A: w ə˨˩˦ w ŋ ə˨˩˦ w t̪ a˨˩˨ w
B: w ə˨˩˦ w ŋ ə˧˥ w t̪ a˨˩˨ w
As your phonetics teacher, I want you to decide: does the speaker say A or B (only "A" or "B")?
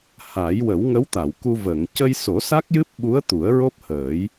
B